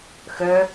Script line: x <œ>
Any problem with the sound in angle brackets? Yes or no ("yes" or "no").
no